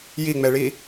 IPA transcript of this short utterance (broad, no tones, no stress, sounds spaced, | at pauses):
j i ŋ͡m ɛ ɭ i